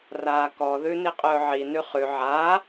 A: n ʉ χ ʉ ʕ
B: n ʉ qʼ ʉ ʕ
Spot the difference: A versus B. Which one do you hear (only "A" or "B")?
A